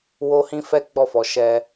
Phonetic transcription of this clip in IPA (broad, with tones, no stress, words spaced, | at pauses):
wo˦hĩ˦fɛ˦ ɡ͡bɔ˦˨fɔ˨˦ ʃɛ˧